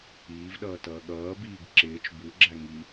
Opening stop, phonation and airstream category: implosive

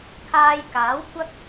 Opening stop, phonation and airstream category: aspirated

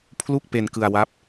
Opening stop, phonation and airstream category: aspirated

